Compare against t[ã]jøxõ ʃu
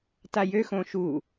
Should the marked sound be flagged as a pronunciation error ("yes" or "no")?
yes